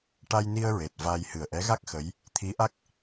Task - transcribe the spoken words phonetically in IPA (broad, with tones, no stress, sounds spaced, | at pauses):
ʈ a˧ j n i˧ ə̯ ɹ e˨˩ t̚ v a˧ j h ɨ˨˩ ə̯ ʔ ɛ˧˥ ɣ a˦˥ k̚ x ə˧˥ j | t̪ʰ i˧˥ ʔ a˦˥ k̚